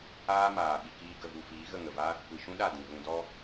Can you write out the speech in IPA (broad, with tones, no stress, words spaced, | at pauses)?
aː˦maː˨ ɓi˨kiː˧ ɡə˨vu˨ fiː˨˦ɣə˦˨ŋə˨va˦ | kʷi˨ʃũ˦ɗa˦˨ dĩ˨ɣũ˧dɔ˦